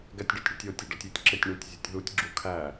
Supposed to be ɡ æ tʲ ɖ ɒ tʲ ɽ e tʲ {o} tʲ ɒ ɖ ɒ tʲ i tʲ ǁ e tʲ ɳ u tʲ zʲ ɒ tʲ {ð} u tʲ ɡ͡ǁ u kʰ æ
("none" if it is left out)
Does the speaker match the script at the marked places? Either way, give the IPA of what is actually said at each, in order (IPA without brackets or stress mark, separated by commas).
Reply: o, ð